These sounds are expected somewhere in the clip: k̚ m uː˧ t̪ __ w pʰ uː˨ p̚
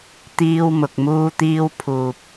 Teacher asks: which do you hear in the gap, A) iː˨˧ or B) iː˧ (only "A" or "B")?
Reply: B